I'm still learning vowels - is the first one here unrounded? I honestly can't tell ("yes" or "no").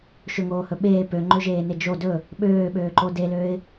no